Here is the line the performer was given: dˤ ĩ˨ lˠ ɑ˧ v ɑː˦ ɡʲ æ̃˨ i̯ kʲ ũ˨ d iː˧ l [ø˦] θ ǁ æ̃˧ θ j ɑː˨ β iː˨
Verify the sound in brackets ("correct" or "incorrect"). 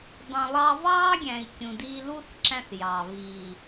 incorrect